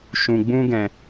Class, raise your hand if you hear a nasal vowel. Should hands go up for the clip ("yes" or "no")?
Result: yes